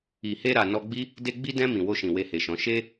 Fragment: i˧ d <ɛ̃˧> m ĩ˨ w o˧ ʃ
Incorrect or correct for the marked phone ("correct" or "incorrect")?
correct